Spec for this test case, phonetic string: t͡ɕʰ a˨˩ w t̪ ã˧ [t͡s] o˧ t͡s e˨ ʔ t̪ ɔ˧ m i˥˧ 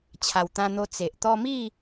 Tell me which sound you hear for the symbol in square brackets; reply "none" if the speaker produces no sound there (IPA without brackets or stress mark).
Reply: n̪